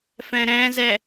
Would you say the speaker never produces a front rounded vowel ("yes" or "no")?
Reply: yes